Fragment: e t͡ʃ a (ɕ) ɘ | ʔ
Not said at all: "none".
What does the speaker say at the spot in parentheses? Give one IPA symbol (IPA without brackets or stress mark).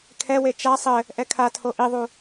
sˤ